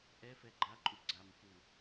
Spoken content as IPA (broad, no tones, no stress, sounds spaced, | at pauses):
ʔ ɛ f ɛ ɡ͡ǃ a ǃʼ u ɡ͡ǀ a m f u